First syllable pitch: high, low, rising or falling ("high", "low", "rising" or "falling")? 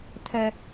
high